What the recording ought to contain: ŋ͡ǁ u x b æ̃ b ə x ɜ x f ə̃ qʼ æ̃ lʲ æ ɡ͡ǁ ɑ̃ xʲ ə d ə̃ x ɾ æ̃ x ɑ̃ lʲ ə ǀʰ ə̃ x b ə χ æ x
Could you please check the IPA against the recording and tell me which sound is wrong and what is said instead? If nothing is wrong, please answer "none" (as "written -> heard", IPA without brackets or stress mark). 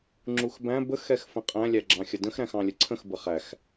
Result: ɜ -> ɛ